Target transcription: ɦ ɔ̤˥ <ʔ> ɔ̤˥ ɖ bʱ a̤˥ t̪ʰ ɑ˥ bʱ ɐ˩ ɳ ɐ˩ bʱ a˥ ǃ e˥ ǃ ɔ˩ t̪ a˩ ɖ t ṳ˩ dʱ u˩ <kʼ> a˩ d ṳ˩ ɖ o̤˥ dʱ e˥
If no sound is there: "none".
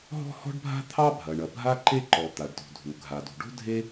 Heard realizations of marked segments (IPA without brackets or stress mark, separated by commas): h, ɡʱ